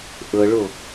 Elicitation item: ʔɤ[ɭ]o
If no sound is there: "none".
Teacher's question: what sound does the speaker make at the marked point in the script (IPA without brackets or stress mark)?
ɭ